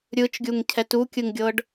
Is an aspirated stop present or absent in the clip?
present